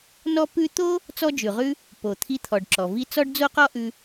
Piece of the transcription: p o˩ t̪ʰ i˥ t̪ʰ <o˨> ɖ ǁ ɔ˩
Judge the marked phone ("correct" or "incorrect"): incorrect